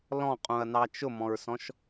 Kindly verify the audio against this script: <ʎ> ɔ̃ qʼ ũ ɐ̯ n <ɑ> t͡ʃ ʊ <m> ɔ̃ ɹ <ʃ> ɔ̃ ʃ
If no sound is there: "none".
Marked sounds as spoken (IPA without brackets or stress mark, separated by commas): l, ɑ, m, s